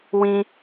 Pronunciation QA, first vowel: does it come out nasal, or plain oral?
nasal